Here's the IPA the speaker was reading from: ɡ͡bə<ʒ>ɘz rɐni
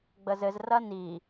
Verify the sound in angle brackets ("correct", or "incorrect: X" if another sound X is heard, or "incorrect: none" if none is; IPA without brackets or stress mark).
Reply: incorrect: z